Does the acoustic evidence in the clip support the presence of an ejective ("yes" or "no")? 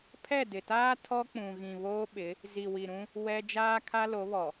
no